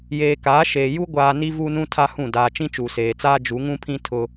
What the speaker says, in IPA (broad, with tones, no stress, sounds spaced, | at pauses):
j eː˨ k aː˨˦ ʃ eː˨ j u˦ ɡʷ aː˨ n i˦ v u˦ n ũ˦ tʰ a˦ h ũ˦˨ d aː˨ t͡ʃ ĩ˦ t͡ʃ uː˨ s eː˨ t͡s aː˦ d͡ʒ u˨˦ ŋ ũ˦ pʰ ĩ˦ tʰ ʊ˦